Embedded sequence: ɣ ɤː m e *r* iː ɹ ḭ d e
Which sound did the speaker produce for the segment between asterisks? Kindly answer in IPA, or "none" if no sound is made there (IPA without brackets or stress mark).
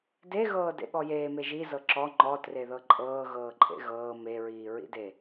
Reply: ɹ